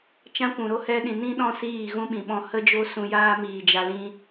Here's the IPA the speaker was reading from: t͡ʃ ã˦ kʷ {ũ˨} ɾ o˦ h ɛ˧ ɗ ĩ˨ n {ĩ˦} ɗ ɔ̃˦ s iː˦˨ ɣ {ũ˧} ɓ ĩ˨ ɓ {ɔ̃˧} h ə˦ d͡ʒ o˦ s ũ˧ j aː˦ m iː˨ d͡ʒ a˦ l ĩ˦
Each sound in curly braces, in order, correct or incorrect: correct, correct, incorrect: ũ˦, correct

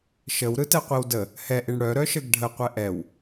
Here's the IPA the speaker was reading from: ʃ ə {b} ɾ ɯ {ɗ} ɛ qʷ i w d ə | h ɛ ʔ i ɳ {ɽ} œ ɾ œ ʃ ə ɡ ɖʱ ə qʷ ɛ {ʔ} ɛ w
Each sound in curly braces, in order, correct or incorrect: incorrect: w, incorrect: t, correct, correct

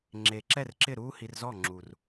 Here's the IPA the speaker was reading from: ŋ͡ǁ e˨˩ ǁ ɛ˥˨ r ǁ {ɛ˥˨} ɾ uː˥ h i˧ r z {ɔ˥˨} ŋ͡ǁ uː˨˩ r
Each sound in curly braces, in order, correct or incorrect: incorrect: ɪ˥˨, correct

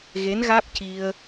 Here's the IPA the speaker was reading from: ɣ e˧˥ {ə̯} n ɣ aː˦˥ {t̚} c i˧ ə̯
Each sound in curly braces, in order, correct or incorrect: incorrect: none, incorrect: p̚

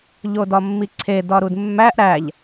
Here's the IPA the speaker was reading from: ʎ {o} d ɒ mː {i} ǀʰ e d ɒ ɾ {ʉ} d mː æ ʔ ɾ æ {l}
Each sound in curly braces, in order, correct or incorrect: correct, correct, incorrect: u, incorrect: ʎ

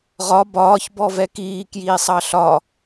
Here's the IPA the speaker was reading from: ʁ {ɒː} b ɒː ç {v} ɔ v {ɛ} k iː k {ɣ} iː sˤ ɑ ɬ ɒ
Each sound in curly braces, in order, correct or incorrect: incorrect: ɒ, incorrect: b, correct, incorrect: j

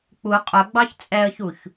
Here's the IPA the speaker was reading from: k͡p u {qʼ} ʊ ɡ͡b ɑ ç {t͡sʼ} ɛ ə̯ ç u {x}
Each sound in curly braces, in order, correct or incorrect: correct, correct, incorrect: ç

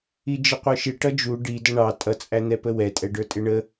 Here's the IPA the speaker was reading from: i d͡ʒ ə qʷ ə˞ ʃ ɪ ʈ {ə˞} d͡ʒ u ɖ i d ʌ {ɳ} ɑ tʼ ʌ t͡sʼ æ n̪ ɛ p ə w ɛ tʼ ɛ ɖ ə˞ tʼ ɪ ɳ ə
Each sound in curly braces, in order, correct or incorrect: incorrect: ʌ, correct

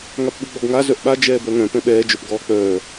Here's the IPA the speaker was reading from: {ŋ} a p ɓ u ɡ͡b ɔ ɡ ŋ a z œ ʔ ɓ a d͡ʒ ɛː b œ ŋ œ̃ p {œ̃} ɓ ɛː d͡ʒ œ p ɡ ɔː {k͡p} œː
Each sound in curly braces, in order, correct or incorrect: correct, incorrect: ɛ̃, correct

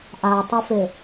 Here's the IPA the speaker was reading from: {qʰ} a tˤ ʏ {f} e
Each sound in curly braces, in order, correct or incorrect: incorrect: ʔ, correct

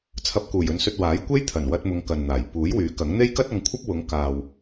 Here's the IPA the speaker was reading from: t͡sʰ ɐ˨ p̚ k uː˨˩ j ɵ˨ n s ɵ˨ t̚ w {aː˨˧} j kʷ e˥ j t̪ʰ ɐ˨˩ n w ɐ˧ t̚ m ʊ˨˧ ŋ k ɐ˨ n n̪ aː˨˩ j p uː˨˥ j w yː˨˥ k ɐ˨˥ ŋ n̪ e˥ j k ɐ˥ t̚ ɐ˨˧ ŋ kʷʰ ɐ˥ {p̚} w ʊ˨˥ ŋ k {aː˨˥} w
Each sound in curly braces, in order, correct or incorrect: incorrect: aː˨˥, correct, incorrect: aː˨

